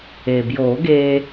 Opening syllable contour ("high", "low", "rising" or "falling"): low